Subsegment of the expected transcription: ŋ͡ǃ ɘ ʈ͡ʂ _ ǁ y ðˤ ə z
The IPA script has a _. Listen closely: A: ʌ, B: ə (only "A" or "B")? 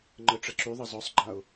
B